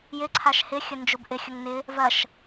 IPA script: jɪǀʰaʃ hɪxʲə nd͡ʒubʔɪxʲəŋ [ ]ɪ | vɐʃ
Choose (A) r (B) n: B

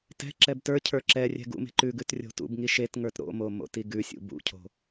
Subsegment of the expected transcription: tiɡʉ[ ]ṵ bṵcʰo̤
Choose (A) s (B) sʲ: B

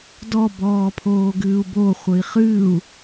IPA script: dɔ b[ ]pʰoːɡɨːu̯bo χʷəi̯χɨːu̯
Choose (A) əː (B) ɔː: B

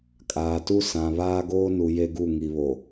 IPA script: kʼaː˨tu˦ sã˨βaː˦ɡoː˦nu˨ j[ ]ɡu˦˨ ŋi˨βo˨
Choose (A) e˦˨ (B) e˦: B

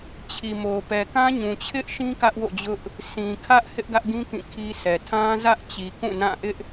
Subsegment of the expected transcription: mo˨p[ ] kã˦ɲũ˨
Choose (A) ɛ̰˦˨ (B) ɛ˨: B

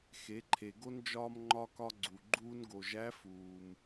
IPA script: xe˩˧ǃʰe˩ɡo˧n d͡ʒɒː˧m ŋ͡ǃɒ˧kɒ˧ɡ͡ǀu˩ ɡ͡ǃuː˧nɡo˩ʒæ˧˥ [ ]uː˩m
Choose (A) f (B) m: A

